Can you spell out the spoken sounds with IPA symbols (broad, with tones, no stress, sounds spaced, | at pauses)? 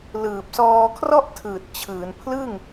l ɯː˨˩ p̚ s ɔː˧ kʰ r ɔ˥˩ ʔ tʰ ɯː˨˩ t̚ t͡ɕʰ ɯː˩˦ n pʰ l ɯ˥˩ ŋ